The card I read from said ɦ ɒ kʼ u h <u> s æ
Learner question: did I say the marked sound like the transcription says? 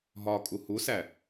yes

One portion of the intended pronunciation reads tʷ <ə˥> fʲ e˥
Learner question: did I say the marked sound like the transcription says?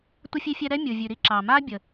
yes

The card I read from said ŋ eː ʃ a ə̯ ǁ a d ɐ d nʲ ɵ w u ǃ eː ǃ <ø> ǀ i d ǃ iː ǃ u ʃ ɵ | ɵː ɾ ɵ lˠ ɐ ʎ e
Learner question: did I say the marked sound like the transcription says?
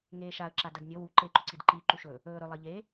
no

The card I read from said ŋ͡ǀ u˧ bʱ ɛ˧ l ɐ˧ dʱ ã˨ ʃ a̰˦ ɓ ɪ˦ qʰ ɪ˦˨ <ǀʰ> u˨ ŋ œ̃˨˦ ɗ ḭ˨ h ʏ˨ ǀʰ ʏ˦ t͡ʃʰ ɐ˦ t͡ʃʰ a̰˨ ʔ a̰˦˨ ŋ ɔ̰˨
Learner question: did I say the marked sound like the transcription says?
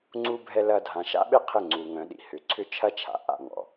no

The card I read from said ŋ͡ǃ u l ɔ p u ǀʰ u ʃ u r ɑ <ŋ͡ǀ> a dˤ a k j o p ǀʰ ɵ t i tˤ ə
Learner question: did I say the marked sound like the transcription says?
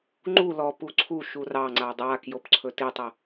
yes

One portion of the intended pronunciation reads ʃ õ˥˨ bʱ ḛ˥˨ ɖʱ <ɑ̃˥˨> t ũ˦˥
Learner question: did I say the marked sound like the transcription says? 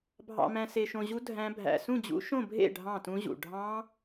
yes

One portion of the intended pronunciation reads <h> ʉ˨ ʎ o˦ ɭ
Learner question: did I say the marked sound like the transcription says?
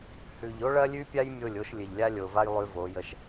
yes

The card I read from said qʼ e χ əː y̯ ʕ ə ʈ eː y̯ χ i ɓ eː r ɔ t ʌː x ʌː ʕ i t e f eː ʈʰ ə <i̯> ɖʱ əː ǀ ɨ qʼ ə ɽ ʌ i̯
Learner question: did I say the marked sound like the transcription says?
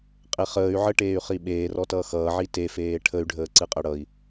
no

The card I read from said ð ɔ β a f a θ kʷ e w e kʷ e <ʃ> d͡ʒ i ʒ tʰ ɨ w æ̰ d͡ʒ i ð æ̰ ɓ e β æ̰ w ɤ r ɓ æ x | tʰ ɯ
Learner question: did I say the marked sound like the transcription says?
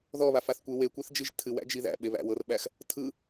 no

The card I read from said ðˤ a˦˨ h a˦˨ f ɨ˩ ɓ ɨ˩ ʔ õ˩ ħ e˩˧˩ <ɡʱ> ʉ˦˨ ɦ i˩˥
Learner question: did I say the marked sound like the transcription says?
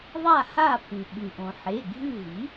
yes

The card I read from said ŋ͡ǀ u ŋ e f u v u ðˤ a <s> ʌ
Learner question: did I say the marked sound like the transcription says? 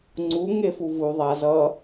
no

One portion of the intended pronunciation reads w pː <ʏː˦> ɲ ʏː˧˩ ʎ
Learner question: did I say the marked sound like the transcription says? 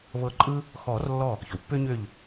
yes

